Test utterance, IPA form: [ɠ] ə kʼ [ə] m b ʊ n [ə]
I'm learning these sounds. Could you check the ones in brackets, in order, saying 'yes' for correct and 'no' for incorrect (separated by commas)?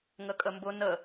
no, yes, yes